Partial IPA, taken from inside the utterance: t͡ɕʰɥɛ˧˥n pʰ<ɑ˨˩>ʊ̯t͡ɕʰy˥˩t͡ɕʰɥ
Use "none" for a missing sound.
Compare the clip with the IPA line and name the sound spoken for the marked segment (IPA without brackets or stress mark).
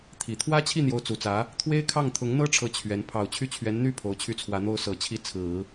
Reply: ɑ˨˩